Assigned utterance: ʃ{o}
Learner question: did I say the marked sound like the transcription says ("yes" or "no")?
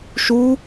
no